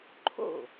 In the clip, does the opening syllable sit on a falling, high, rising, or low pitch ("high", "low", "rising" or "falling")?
falling